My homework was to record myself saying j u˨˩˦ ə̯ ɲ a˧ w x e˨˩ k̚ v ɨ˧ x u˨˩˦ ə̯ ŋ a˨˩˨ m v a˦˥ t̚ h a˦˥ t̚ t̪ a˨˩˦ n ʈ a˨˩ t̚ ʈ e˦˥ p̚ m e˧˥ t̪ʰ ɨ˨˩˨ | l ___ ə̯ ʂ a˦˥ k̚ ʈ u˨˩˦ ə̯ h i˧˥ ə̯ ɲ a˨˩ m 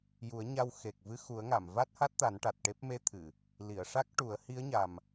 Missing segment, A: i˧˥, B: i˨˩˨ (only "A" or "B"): B